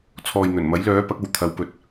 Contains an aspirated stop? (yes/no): yes